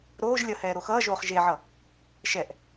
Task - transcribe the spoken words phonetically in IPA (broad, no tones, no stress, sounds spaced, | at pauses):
ɾ oː ʒ lʲ ʌ h ɛː ɾ o x ʌː ʒ oː χ ʒ e ʕ ʌ | ʃ ɛ ʔ